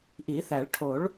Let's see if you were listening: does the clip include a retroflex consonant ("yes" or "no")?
yes